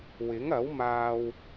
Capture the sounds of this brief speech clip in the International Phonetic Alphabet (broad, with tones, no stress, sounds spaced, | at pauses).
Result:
w ɪ˨˥ ŋ ɐ˨˥ w m aː˧ w